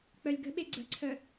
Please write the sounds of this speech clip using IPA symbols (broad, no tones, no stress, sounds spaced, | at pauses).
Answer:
k͡p œ lʲ ɡ ə̤ ɓ e ɡ͡ǀ ə̤ ǀʰ œ